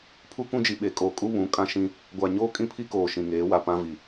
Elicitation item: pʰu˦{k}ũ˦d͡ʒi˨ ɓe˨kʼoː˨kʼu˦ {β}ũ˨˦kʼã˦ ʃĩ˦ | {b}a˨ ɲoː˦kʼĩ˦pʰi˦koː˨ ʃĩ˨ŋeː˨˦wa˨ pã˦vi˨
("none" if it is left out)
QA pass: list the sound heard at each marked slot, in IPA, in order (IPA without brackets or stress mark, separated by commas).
k, β, ɡʷ